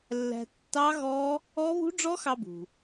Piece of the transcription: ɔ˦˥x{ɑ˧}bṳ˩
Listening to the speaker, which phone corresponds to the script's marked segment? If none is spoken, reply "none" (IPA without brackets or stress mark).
ɑ˧